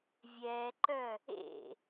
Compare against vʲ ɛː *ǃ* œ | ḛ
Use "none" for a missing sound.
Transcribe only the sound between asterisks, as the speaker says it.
ǃ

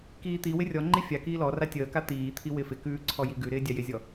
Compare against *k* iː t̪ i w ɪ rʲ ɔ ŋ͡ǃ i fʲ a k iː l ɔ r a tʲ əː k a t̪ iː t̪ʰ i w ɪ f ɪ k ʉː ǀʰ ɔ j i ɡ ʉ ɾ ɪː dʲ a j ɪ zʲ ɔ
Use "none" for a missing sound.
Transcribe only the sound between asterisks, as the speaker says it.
k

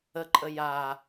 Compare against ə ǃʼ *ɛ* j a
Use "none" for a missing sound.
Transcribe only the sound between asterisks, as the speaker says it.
ə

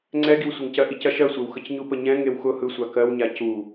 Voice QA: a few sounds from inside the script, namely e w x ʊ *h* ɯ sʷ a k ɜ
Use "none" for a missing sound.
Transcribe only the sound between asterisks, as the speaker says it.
h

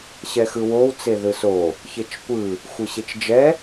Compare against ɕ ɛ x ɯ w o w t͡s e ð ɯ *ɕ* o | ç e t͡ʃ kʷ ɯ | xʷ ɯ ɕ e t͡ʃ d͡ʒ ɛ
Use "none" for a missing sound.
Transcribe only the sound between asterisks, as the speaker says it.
s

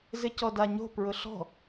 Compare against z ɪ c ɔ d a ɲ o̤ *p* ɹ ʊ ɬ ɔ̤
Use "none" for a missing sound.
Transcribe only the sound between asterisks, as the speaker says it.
p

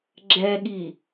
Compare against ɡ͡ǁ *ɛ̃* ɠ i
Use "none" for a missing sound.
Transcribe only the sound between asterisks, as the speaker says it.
ɛ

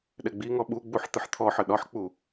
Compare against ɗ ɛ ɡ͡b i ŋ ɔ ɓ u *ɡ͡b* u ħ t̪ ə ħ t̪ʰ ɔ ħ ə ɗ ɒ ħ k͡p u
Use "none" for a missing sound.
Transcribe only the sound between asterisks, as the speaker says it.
ɡ͡b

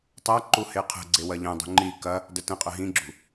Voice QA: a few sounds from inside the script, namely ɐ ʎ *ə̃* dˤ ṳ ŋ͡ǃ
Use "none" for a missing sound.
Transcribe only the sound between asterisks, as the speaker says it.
ə̃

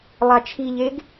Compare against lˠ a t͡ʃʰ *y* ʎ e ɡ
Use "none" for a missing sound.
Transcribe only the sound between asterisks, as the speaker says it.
i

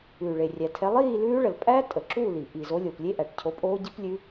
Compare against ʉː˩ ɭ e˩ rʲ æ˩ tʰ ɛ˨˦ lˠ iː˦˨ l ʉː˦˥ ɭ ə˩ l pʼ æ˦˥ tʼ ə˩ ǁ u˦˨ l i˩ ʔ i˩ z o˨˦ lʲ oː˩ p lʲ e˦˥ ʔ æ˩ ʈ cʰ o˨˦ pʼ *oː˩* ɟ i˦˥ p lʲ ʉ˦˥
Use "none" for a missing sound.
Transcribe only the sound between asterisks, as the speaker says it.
oː˦˥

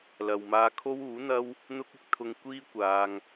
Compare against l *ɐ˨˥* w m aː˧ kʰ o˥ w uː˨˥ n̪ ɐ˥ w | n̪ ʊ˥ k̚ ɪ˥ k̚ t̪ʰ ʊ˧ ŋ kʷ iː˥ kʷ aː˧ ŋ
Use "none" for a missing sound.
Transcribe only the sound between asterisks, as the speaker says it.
ɐ˨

